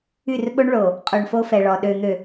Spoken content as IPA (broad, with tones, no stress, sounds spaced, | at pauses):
y˦˨ r ɓ o˦ ɳ ɭ o˨ | qʼ u˨ ɳ f o˦ f ɛ˨ ɭ ɔ˨ ɗ ø˨ n̪ ø˨